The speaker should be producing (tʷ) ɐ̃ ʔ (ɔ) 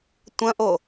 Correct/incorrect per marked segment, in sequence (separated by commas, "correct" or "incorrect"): correct, incorrect